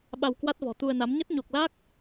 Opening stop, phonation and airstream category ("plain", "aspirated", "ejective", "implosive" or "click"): implosive